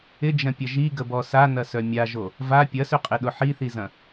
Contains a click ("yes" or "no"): no